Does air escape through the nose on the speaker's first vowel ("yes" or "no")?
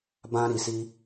yes